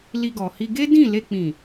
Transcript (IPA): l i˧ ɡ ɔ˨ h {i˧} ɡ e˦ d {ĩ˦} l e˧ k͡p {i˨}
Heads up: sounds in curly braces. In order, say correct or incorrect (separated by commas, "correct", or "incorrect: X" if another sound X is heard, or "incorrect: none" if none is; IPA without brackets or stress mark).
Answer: correct, incorrect: ĩ˦˨, incorrect: ĩ˨